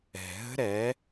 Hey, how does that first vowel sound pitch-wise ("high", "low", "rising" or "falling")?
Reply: low